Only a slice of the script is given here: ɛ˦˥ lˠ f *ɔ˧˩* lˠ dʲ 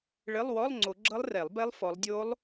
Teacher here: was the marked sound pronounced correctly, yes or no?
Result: no